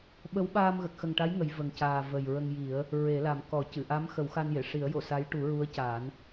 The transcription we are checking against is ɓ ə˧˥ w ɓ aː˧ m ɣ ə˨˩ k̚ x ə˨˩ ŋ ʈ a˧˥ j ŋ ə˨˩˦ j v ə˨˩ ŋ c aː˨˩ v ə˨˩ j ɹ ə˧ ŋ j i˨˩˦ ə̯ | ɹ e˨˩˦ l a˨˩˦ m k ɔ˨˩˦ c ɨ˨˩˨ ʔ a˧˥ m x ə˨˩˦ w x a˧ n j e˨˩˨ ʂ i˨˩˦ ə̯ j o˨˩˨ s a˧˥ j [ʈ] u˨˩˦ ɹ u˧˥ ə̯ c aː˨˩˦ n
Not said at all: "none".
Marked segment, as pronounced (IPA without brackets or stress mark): ʈ